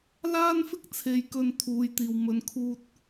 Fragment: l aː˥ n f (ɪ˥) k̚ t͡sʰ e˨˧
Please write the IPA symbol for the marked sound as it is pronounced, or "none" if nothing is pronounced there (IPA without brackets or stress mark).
ɪ˥